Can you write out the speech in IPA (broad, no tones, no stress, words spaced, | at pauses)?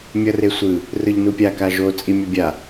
mʲʌresʷɯ | rɯʎnupʲa kaʒo t͡sʼimʲʌbʲa